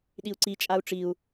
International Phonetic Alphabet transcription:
ɗ i u̯ ǀ i t͡ʃʼ a u̯ ʈ͡ʂ i u̯

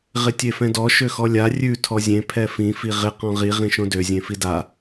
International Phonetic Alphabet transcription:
ʁ ɪ tʲ e f ɛ̃ d ɔ ʃ ø x ɔ lʲ a rʲ ʉ tʰ ɔ zʲ ẽ pʰ ɛ f ĩ f i ʁ ɪ q ɔ̃ ʁ i ʁ ĩ ʃ õ d ø zʲ ẽ f i d a

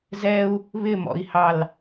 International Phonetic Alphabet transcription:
z ɛ u̯ | β ɪ m ɔ̰ i̯ h ɑ l

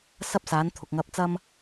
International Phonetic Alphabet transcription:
s ɐ˥ p̚ s aː˨˥ n t̪ʰ ʊ˨ k̚ ŋ ɐ˧ p̚ t͡s ɐ˥ m

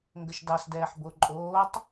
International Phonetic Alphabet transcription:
ŋ ɡ ə ʃ d ɑ s d ɛː ħ b o ǃʼ oː tˤ

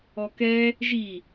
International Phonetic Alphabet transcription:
ɔ k ɛ | ʒ i

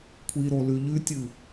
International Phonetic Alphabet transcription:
kʷʰ i ɾ o l ʉ ʎ ʉ tʲ ɨ

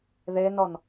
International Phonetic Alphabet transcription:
ð e n ɔ n

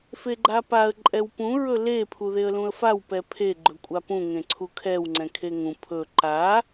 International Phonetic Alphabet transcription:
f e ɡ͡ǃ a p a ə̯ ǃʼ ɛ w p ũ ɹ ɵ l e pʰ u ð e ə̯ l ũ ə̯ f a w p ɛ pʰ e ɡ͡ǃ ɵ kʷʼ a p ũ ŋ ẽ ǀʰ u kʰ ɛ w ŋ͡ǀ ɛ̃ kʰ e ŋ ũ pʰ ɵ ǃ a

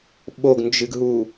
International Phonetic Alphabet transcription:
ɓ o ɡ n d͡ʒ ɨ ɡ ɦ u

